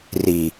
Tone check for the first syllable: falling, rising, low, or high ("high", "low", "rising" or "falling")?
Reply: low